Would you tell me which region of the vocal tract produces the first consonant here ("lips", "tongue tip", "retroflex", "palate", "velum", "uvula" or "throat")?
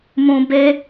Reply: lips